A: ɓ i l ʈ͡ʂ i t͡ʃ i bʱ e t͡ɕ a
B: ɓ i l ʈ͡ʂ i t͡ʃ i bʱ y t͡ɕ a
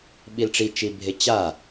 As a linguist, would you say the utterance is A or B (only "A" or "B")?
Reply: A